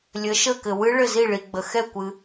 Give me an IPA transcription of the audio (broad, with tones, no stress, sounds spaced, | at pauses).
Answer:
lʲ ə˨˥ ʃ ə˥˨ k ɘ˨ w ɨ˦˥ ɭ ɘ˥˨ z i˥˨ ɭ i˨ ɡ͡b ə˨ x ɛ˥˨ kʷ ɨ˨